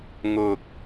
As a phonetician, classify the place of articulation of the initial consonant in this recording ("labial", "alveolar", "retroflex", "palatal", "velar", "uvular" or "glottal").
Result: velar